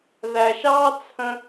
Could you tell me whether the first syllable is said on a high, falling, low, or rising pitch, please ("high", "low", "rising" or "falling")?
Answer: low